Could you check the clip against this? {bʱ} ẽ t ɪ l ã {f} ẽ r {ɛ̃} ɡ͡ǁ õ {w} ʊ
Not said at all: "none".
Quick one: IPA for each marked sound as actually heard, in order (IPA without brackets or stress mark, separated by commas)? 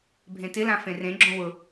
bʱ, f, ẽ, w